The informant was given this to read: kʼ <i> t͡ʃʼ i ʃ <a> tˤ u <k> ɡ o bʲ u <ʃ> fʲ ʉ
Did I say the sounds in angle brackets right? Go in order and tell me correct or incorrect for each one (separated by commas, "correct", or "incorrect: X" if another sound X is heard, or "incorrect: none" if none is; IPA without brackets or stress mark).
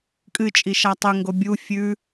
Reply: incorrect: ɨ, correct, incorrect: ŋ, incorrect: none